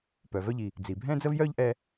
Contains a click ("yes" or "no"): no